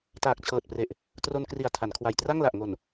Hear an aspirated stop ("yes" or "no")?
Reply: yes